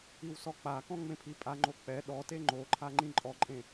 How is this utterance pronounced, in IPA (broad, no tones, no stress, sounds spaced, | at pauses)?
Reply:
i w s ɔ k͡p a k ɔ̃ ŋ͡m ẽ pʰ i pʼ a ŋ͡ǃ o k͡p ɛ ɗ ɔ t e ŋ͡ǃ o ǃʰ a ŋ͡ǃ ĩ ǃʼ ɔ ǃʼ ẽ